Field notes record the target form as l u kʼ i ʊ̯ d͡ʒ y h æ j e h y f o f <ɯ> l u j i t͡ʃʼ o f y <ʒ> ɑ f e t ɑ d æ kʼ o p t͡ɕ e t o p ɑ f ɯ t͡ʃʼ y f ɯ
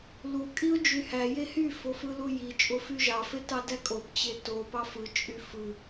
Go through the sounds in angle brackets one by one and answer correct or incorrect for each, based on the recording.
correct, correct

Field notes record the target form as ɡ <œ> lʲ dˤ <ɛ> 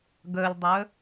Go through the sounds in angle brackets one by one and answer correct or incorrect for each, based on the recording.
correct, incorrect

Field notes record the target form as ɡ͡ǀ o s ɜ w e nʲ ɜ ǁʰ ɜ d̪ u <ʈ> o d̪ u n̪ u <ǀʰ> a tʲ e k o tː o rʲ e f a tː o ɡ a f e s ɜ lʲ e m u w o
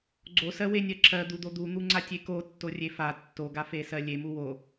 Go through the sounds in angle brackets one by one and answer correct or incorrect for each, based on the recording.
incorrect, incorrect

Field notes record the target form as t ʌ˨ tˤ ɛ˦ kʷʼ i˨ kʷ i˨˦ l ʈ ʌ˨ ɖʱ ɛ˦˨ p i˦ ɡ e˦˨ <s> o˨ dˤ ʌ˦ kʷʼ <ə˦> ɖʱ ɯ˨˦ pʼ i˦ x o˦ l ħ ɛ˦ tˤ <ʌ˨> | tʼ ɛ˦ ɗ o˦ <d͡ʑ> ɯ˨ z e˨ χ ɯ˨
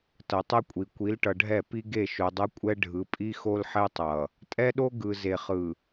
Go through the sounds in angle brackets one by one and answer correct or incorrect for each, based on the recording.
incorrect, incorrect, correct, incorrect

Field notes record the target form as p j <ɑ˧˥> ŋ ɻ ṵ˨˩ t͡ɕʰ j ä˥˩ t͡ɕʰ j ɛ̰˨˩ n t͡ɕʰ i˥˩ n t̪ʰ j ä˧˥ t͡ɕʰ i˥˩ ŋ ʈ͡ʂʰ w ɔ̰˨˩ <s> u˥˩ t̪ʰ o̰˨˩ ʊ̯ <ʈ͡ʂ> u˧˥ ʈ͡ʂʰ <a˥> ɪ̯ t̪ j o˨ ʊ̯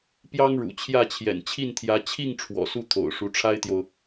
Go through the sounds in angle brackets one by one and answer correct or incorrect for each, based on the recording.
incorrect, correct, incorrect, correct

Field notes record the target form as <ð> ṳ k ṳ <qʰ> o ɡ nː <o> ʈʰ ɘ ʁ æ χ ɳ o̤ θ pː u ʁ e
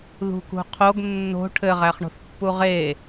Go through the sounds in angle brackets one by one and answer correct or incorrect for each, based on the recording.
correct, correct, incorrect

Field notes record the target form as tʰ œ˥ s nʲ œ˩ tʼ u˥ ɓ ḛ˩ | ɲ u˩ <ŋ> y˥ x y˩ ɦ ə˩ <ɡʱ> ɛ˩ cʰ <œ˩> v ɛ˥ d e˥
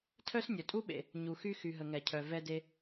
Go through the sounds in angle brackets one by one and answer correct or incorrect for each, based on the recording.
incorrect, incorrect, correct

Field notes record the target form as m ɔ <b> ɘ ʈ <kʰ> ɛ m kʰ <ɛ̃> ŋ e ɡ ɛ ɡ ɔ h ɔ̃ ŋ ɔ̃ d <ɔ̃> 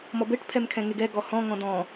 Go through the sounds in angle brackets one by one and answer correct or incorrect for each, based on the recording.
correct, incorrect, correct, correct

